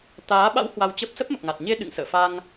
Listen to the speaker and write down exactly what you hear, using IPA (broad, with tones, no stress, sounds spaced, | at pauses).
t̪ aː˨˦ ɓ a̰˧˥ w h w a˧ w t͡ɕ ə˦˥ p̚ s ə˦˥ p̚ m ə˨˩ p̚ ŋ a˨˩ t̚ ɲ e˧ ɗ ɨ̰˧˨ ŋ s ə̰ː˧˨ f a˧ ŋ